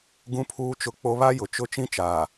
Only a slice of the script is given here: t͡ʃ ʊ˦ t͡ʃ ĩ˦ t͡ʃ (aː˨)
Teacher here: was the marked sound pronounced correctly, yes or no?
yes